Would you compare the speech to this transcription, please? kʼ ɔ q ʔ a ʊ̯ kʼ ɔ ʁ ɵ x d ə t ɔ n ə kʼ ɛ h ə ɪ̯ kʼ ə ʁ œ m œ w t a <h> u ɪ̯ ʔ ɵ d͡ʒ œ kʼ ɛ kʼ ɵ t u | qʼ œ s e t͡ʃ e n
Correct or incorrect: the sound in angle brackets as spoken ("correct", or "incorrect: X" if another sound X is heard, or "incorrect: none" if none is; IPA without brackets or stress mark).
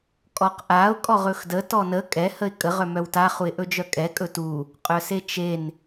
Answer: incorrect: χ